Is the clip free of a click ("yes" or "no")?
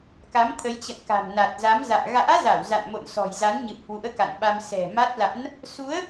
yes